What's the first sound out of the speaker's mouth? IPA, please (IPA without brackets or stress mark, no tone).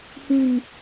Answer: h